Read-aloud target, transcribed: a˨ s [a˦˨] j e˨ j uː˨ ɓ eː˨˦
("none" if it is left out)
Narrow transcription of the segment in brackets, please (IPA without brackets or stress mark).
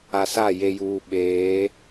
a˦˨